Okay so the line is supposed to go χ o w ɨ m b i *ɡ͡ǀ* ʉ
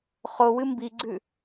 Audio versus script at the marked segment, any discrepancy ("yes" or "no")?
no